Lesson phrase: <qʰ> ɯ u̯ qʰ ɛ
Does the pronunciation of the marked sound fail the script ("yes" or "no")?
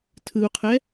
yes